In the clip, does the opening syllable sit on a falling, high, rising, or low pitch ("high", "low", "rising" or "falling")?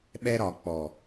high